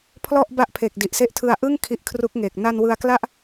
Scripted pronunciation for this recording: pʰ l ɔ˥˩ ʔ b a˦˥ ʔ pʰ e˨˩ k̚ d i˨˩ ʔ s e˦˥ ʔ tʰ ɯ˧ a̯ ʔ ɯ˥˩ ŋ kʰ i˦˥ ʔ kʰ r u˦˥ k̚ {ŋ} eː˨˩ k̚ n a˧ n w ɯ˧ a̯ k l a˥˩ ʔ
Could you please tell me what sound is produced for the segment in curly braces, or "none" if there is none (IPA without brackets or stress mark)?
ŋ